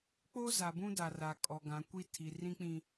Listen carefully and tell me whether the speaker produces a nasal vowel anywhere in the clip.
yes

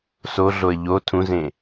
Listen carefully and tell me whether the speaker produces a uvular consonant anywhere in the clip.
no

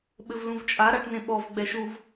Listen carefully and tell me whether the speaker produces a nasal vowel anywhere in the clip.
yes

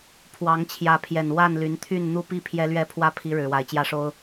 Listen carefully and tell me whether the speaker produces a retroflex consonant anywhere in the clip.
yes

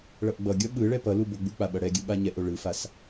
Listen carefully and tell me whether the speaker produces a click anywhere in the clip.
no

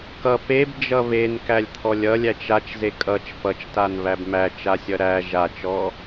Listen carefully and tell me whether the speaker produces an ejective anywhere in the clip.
yes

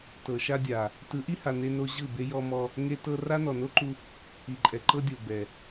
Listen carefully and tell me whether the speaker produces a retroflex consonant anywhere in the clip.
no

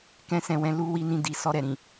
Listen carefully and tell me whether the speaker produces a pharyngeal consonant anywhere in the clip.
no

